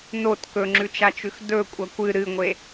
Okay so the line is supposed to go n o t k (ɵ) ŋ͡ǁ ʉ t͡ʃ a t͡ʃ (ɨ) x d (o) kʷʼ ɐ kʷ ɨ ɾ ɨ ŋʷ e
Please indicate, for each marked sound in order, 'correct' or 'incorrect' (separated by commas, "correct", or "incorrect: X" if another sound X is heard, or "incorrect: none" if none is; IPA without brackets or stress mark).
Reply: correct, incorrect: ʉ, incorrect: ɵ